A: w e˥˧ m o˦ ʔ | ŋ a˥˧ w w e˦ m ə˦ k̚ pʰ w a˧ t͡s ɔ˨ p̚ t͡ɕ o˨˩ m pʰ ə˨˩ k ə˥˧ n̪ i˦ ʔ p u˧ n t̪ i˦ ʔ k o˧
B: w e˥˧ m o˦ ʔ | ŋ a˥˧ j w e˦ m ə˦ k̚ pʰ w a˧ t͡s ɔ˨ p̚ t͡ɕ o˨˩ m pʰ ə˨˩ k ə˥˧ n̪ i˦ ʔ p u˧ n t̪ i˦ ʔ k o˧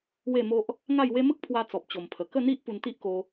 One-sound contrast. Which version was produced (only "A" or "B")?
B